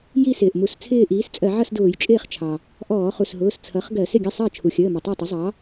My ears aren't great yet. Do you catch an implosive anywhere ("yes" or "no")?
no